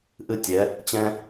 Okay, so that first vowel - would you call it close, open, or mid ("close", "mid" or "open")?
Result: close